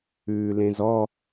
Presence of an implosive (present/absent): absent